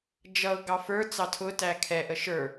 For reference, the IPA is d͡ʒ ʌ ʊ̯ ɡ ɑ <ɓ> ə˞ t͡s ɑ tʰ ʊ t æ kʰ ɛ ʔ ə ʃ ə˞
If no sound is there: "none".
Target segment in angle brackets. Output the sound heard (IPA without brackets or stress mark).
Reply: f